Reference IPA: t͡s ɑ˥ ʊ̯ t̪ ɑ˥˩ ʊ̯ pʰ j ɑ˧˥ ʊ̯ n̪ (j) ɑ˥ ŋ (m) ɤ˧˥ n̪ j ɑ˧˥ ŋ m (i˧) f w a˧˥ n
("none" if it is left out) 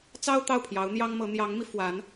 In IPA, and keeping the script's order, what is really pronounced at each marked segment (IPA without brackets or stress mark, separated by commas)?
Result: j, m, i˧